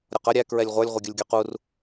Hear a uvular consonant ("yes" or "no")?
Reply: yes